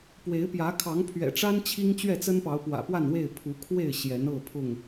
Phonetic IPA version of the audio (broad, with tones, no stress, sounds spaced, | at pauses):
p w e˨˦ ɪ̯ p j ä˨˦ kʰ ɑ˨˦ ŋ pʰ ɥ ɛ̰˨˩ ʈ͡ʂ a˦ n t͡ɕʰ i˦ ŋ t͡ɕ ɥ ɛ˥˨ t͡s ə˦ n p ɑ˨˦ ʊ̯ p w ä̰˨˩ p w a˥˨ n w e˥˨ ɪ̯ pʰ u˨˦ kʰ w e˥˨ ɪ̯ ɕ j ɛ˨˦ n ɤ˥˨ pʰ ʊ˥˨ ŋ